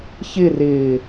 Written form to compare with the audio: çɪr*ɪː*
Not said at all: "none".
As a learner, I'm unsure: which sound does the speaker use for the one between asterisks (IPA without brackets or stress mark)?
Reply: ɪː